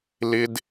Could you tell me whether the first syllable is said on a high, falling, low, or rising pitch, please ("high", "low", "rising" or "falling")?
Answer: high